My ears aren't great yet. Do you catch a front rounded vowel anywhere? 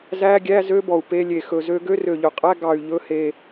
yes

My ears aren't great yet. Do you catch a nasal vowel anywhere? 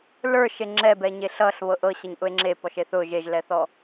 no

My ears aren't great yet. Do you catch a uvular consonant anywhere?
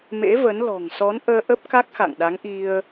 no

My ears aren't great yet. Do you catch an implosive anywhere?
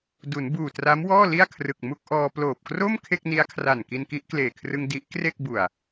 no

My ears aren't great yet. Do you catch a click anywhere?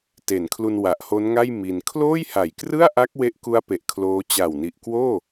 no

